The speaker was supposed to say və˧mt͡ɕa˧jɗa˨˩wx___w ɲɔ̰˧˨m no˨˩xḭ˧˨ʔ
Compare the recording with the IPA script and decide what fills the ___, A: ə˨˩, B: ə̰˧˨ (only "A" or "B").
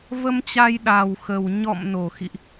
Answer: A